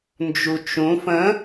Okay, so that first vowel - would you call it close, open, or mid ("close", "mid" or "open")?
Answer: close